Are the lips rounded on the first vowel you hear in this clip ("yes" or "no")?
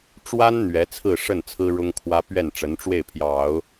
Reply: no